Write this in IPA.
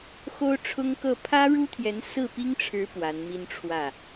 xo˥ʊ̯ʈ͡ʂʰʊ˥ŋkɤ˥˩ pʰä˥ɻu˥t̪ʰjɛ˧˥n sɹ̩˥˩pi˥ŋʈ͡ʂʰɻ̩˧˥ pwa˧˥nmi˥nʈ͡ʂʰwä˥˩

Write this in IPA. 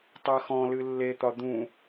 tˤɜxɔ̃lɨ lːet̪ɒ d̪ũ

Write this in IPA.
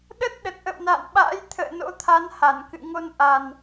ɗə˦˥t̚ ɗə˨˩t̚ʔə̰˧˨wna̰ː˧˨nɓa̰ː˧˥j t̪ʰə̰ː˧˨no̰˧˥t̪ʰa˨˦n ha˧˩nkɨ̰˧˨ ŋo˧nʔa˨˩n

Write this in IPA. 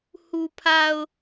hu˨pʰa˨ʊ̯

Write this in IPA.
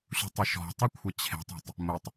ɕṳtˤəʃɔ̤tˤʊ kʷʰət͡ɕʰe̤tˤe̤tˤ | mʊtˤ

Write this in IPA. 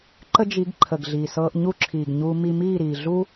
ǃə˦d͡ʒi˨˦ɡ ǃʰə˨ɡɮiː˨ sɤː˧ʔɲu˦ǁʰiː˨ɡ ɲuː˦ mi˧miː˦˨ɾiː˨ ɮu˦

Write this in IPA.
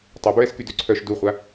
tˤœbɹɛskydø ǀʰœʃ duχʷa

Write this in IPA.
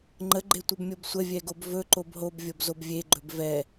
ŋ͡ǃəɡ͡ǃetʷəbmʲob sʷəvʲɛɡob vɵǃob ɦobvʲobzob vʲeɡ͡ǃɵb vɛ

